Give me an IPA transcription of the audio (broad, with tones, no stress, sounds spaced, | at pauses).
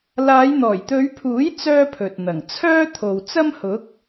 l aː˨˧ j n̪ ɔː˨˩ j t̪ ɵ˨˧ ɥ pʰ uː˨˥ j t͡s œː˥ pʰ ɵ˨ t̚ n̪ ɐ˨˩ ŋ t͡sʰ œː˥ t̪ʰ o˨ w t͡s ɐ˥ m h ʊ˨˥ k̚